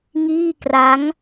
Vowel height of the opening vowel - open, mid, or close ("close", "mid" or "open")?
close